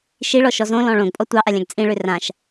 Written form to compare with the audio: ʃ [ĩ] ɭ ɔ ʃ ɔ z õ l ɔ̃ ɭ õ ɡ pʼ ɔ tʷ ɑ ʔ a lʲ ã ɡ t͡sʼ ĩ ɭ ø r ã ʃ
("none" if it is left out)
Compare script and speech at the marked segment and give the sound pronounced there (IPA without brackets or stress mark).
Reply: i